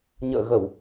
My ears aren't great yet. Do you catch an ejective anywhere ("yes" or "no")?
no